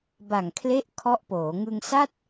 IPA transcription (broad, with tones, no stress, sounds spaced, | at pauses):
b a˨˩ ŋ kʰ l e˦˥ ʔ kʰ ɔ˦˥ ʔ p oː˩˦ ŋ ɯ˧ ŋ s a˥˩ t̚